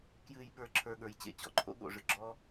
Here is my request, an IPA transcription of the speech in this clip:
kjɨː˧jɓə˞˧ǁʰə˞˧ ɠə˞˨˦jt͡ɕḛ˦ t͡ɕɔ̰˧ǃʰo̰˦ ɠo̰˧ʐɨ˧ ɡ͡ǁɔ˦

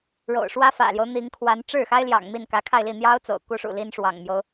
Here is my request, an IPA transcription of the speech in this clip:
ɻo̰˨˩ʊ̯ʂwä˥fä̰˨˩ljo˦ʊ̯ n̪i˧˥ŋkʰwa˧˥n ʈ͡ʂɻ̩˥˩xa˥ɪ̯ljɑ̰˨˩ŋ mi˥˩nkä˧˥kʰa˥˧ɪ̯li˥˩ n̪jɑ˥ʊ̯t͡so̰˨˩ʊ̯ ku˥ʂṵ˨˩ li˥nʂwɑ̰˨˩ŋmjo˦ʊ̯

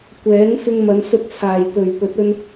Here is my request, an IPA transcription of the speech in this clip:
kʷɛː˨˥ŋ fɪ˧ŋmɐ˨˧n sɵ˧t̚t͡sʰaː˨˩j t̪ɵ˨˩ɥ pɵ˨˥t̚ɵ˧n

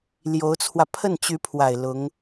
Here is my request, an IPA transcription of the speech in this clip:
ljo˧˥ʊ̯t͡sʰwä˧ pʰə˥˩nt͡ɕy˧˥pʰwa˨˩ɪ̯ lʊ˧˥ŋ

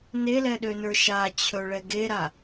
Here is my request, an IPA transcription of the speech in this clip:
nelɛɗønə˞ ʃat͡ɕʰɵɭɛ ɡeɾa

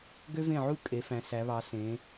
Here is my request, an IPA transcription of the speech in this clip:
ɡø˥vẽ˥˩ʕu˥ kʼe˩˧fæ̃˩˧ sæ˩˧βɑ˩˧ sẽ˩˧

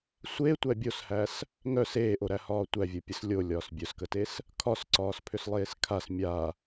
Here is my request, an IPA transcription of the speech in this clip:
sʷe tʷæbʲoshæs | ŋœs eːʔoɾæhɒː tʷævʲopʲəs lʲolʲɒːs bʲœskətes | kʰɒsǀɒːs pʰʏslˠeːskʰas mʲa

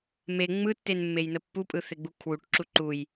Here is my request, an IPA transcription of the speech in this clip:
me ŋ͡mɯtːenmːejnə pːupʼɯθeɡ͡bu kʰwuʈǁu ǃuj

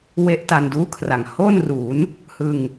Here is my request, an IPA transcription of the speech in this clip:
we˦˥ʔ ta˧nduː˥˩kʰra˨˩ŋ ho˥˩nru˩˦n | hɯ˧ŋ

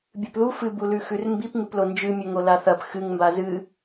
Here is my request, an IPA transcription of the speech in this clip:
bʲɨpðu fɨbulʉ xʉrmbip ŋɨplond͡ʒɨmʲɵ ŋolaθɐp xɨŋmba zɨ

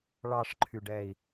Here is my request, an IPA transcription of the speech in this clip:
ɭɑʂǃʰyɖɛi̯

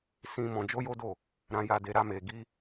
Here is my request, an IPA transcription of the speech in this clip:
sĩ˦ mɔ̃˧d͡ʒo˦jo˦do˦˨ | ɾã˧ja˧de˧ ɾa˦me˧ ɡi˦

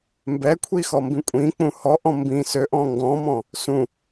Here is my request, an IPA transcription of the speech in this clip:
mbɛkʷʰixɔmbĩ kʷʼĩk͡pũ hɔʔɔ̃ mbĩ søʔɔ̃ ŋɡɔ̃mɔ̃ | sũ

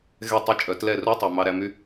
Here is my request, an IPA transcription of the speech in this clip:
ɣɛ˦˨tˤi˦t͡ʃʼœ˨˦tlɛ˦˨ ru˦tˤo˨ mɑ˦ɾæ˦ my˦

